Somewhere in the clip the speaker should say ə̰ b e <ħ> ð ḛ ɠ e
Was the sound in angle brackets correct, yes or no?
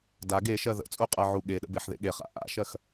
yes